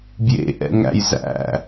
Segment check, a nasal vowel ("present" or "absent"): absent